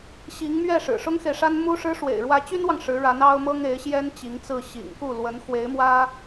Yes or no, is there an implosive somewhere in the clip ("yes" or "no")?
no